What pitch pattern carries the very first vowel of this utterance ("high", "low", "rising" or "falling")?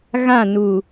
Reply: falling